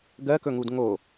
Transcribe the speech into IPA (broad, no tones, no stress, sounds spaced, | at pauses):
ɡ ɜ k ɵ ŋ u d ŋ o